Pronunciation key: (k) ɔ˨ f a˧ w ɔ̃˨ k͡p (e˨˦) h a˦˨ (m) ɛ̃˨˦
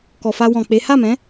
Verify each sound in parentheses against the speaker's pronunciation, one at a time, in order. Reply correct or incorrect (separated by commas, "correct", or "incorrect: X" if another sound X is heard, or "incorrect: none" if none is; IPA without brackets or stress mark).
correct, correct, correct